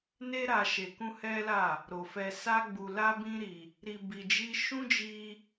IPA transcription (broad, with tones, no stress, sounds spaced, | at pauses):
n e˦ ɾ a˧ ʃ e˧ k ũ˦ h ɛ˦ l a˦˨ | ɾ o˨ f ɛ˧ s a˦ ɡ͡b u˧ l a˦ b ĩ˦ ɾ i˧ | ɾ i˧ b i˧ d͡ʒ i˦ ʃ ũ˦ d͡ʒ i˧